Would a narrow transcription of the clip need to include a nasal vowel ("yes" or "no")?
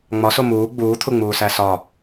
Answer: no